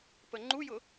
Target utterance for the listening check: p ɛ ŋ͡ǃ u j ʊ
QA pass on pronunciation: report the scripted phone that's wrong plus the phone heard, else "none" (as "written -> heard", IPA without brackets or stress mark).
ɛ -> ə